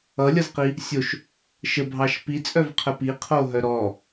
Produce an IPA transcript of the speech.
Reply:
ʌ lʲ ʌ z q i | sʲ o ʃ | ʃ ə bʱ ɑ ʃ p i t͡sʼ œ v qʰ ə p i qʰ o ɦ œ ɾ ɔ

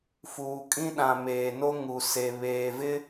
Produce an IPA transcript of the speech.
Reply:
f uː˨ kʼ ĩ˦ ɗ ã˨ m eː˨ n o˦ ŋ u˨ s e˨ β eː˨ v ɪ˦

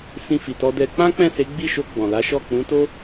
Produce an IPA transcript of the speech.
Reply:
s ĩ˧ f i˨ t ɔ˧ d ɛ˧ k͡p ã˦ k͡p ɛ̃˦˨ s e˨˦ ɡ͡b i˦˨ ʃ o˧ ɡ͡b ɔ̃˨ l a˨˦ ʃ ɔ˦˨ k͡p ũ˨˦ t o˦

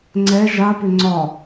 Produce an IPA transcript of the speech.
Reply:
ŋ͡ǀ ɛ ʒ a p ʏ ŋ͡ǀ ɒ

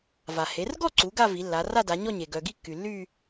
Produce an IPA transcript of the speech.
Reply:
v a˩ h e˩˧ r ɡ ɔ˥˧ ǀ u˩˧ ɡ a˥˧ v i˩˧ lː a˩˧ r a˥˧ d a˩˧ ɲ ɔ˥˧ ɲ e˩ ɡ œ˩ ɡ i˥˧ kː y˩ lː y˥˧

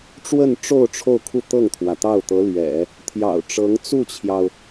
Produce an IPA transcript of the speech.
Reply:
ʈ͡ʂ w ə˥˧ n ʈ͡ʂ o˥˧ ʊ̯ ʈ͡ʂʰ o˥˧ ʊ̯ kʰ u˥˧ t̪ ɤ˥˩ ŋ t̪ʰ w ä˩ t̪ ɑ˥˩ ʊ̯ t̪ ɤ˧˥ l ɥ ɛ̰˨˩˦ | t̪ʰ j ɑ̰˨˩ ʊ̯ ʈ͡ʂ ɤ˧˥ ŋ t͡s u˥˩ t͡ɕʰ j ɑ˩ ʊ̯

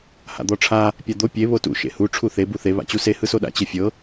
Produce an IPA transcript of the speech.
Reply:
h a̰ d̪ ɔ ʈ͡ʂʰ a | pʲ a d̪ o pʲ e β o t ṵ ʃ ḛ h u ʈ͡ʂʰ u θ e b u θ e β a̰ t͡ɕ u s e h ɯ s o ɗ a̰ t͡ɕ e fʲ ɤ

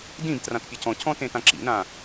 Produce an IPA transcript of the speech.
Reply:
d ĩ b t r ã t pʲ ɤ c ɔ̃ cʰ ɔ̃ t ẽ t ã ǁ ḭ n ã

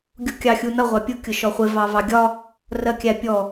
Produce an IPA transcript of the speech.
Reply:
ɡʲ u kʲ ɑ xʲ u n ʌ ʁʷ ɑ pʲ ʊ kʲ ʊ ʃ ɔ χʷ ɪ v ɑ v ɑ ɡʲ ɒ | r ɜ kʲ æ pʲ ɔ

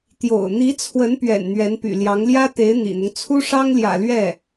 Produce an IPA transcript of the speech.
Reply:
t̪ j o̰˨˩ ʊ̯ n̪ i˧˥ t͡sʰ w ə˧˥ n p ɥ ɛ̰˨˩ n n̪ ɥ ɛ˧˥ n p y̰˨˩ l j ɑ˧˥ ŋ l j ä˥ t̪ e˧˥ ɪ̯ n̪ ḭ˨˩ n̪ ʊ˦ ŋ t͡sʰ u˥ ʂ ɑ˥ ŋ l j ä̰˨˩ l ɥ ɛ˥˩

